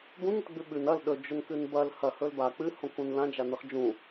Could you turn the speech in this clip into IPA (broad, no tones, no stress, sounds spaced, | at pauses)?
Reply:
b ũ n i t ɡ͡b ʉ ɓ ʉ n ɐ l ɗ ɵ d͡ʒ ɵ n k ɨ n b ɐ l h ɐ h ɵ l b a k͡p ɨ h õ k ũ n l ã d͡ʒ a n ɨ χ d͡ʒ ũ